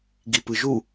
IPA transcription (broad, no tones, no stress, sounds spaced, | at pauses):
ɡ i p ɯ ʒ u